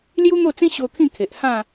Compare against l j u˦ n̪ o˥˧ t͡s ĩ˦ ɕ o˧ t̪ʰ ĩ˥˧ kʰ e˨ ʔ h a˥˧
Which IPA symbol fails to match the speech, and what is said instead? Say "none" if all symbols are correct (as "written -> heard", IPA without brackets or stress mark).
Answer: a˥˧ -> ã˥˧